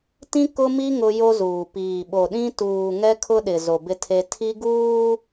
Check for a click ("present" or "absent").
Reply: absent